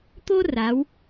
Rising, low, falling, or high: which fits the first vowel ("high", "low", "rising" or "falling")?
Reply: high